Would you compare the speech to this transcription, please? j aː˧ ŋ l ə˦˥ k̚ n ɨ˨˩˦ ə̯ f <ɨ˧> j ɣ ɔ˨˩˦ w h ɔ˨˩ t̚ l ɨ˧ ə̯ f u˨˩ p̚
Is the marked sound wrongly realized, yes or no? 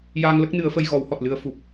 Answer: yes